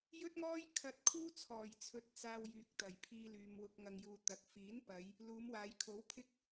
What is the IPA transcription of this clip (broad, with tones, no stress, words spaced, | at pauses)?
jɵ˥t̚ŋɔː˥j kʰɐ˧t̚kʰuː˥t͡sʰɔː˨˩j t͡sʰɵ˧t̚t͡saː˧w jyː˨k̚t̪ɐ˨˩jpʰiː˧lyː˨m wʊ˧k̚ ŋɐ˨ŋjuː˨ t̪ɐ˨k̚ fiː˨˥npɐ˨˧j | luː˨˧mwaː˨˧jkʰo˨˥w pʰɪ˥k̚